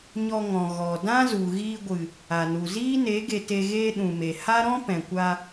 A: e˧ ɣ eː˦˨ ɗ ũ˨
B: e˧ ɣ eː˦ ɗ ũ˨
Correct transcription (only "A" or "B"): B